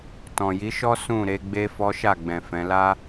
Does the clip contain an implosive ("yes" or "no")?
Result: no